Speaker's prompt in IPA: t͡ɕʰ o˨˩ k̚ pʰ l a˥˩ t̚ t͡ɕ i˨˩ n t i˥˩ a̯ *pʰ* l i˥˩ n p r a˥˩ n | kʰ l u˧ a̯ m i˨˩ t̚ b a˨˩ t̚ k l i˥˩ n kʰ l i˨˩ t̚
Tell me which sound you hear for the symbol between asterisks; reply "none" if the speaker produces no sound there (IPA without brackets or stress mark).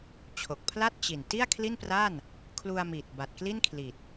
kʰ